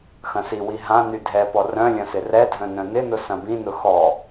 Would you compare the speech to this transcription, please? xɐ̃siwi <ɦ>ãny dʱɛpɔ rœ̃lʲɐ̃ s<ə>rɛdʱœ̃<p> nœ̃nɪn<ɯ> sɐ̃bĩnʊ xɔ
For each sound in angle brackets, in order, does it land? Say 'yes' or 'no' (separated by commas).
yes, no, no, no